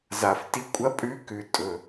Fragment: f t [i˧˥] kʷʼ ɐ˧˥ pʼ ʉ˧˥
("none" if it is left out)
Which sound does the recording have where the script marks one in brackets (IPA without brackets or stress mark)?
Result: i˧˥